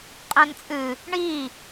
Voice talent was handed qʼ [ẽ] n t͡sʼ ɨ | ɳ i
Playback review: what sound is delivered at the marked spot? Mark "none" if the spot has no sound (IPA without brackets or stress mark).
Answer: ẽ